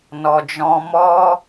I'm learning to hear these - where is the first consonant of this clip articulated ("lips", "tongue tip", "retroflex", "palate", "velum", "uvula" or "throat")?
tongue tip